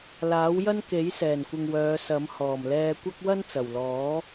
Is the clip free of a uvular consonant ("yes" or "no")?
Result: yes